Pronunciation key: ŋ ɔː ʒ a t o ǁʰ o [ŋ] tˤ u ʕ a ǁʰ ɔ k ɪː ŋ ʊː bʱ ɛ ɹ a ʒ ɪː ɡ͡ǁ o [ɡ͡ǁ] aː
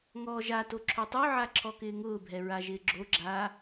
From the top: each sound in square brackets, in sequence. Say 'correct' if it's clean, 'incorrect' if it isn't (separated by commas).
incorrect, correct